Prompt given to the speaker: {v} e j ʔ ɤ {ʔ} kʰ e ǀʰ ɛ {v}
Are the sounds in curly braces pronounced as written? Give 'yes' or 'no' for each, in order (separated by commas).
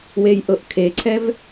no, yes, yes